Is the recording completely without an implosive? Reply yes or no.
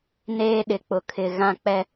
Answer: no